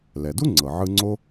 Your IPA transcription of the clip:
l ɛ˩ d u˥ ŋ͡ǀ ɤ˩ ʕ ɯ˧ ŋ͡ǀ o˥

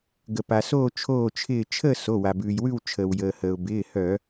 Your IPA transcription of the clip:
ɡ ə˩ p a˩ s oː˥˧ t͡ʃʰ oː˧˩ t͡ʃʰ ɪː˧˩ t͡ʃʰ əː˥˧ s o˩˧˩ w a˩ b ʉː˩ j w ʉ˥˧ w t͡ʃʰ əː˩ w j əː˩ h əː˩ ʊ̯ b ɪː˩˧˩ h œ˧˩˧

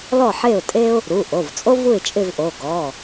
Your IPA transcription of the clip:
l ɔ˥˨ ħ e˥˨ ʊ̯ tʼ e˥ ʊ̯ | ɾ u˩˧˩ ʔ o˩˧˩ v t͡sʼ o˥ v u˥˨ ɪ̯ t͡ʃʼ ɪ˥˨ v ʔ o˩˧˩ ɡ ɔ˩˧˩

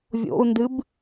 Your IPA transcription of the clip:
vʲ o̰ u̯ n d ɨ b

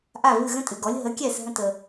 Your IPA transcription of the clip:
ʔ a˥˩ v ɨ˥˩ ɣ ə̃˥ tʼ ɨ˩ ɡ ɔ˩˥ lʲ ɦ ə˩˥ kʲ ɛ˥˩ s ɦ ə̃˧ t ə˩

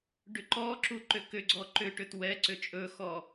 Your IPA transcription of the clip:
ɖ ʏ ǃ ɔ ǁ u ǃ ʏ k ʏ ɡ͡ǀ ɔ ǃ ʏ ʈ ʏ t w ɛ ǀ ʏ t͡ʃʼ ɵ x ɔ

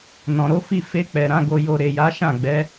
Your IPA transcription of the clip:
n ɔ̃˨ ɾ o˨˦ f i˦˨ f e˧ k͡p ɛ˨ ɾ ã˨˦ ɡ o˧ j o˧ ɾ e˨ j a˨˦ ʃ ã˦˨ ɡ͡b ɛ˨˦

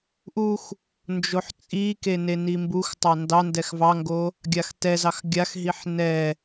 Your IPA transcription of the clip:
ʔ u x | n d͡ʒ o ħ t͡sʼ i k e n e n i m b u x tˤ ɑ n d ɑ n d ɛ x v ɑ ŋ ɡ o | ɡʲ a x t ɛ z ɑ x ɡʲ a x ɦ i ħ n ɛ

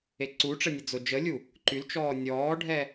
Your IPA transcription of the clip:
e ǀ u ʈ͡ʂ ɛ nʲ ə d͡z o d͡ʒ ə lʲ u | ǃ y l t͡ʃ ɔː nʲ ɔː ɖʱ ɛ

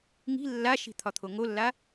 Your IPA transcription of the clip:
ŋ i̤ lː a ʃ i̤ t̪ʰ ɒ t̪ʰ o ŋ o lː a

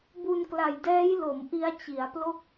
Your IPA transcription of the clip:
b u˧ n k l a˨˩ j d ɛː˦˥ j l o˩˦ m ʔ i˦˥ a̯ t͡ɕ i˩˦ a̯ p l o˥˩ k̚

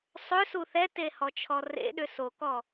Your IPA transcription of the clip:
sˤ ʏ s u θ ɛ t e h ɔ t͡ʃʰ ɔ r ḛ ɗ ʏ s o k ɔ

